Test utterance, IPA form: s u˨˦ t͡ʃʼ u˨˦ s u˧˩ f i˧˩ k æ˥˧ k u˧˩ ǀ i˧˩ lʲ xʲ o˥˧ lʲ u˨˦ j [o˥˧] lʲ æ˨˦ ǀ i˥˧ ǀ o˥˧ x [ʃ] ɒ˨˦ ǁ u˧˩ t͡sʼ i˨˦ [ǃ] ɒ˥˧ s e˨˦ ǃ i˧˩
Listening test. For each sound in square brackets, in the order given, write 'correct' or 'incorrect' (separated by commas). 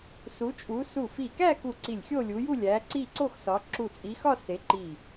incorrect, incorrect, incorrect